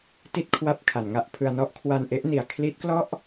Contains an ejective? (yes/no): no